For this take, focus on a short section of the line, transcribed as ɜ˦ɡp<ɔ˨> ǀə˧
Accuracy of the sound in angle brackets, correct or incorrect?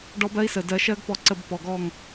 incorrect